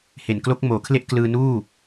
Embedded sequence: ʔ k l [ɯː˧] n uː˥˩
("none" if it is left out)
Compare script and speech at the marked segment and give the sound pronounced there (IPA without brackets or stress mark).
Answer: ɯː˧